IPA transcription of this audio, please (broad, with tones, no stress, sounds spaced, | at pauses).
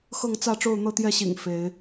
x ɤ˥˨ ŋ t͡s ä˥˨ ʈ͡ʂ o˥˨ ʊ̯ n̪ ɤ˥˨ t̪ j ɛ˥˨ ɕ ḭ˨˩ ŋ f e˨˦ ɪ̯